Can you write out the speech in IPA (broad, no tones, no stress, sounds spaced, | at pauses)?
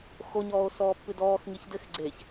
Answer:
x o ɲ ɔː o̯ s ɔː pː ɨ d ɔː x ŋ i ç d ɘ x ɡ͡ǀ e ç